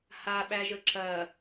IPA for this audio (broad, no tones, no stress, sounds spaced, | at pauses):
h a ɓ æ ʒ ə ǁ ɐ